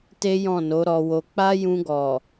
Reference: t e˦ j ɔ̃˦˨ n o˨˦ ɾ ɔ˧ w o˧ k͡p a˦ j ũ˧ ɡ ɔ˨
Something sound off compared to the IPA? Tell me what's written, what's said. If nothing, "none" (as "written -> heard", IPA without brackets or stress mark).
none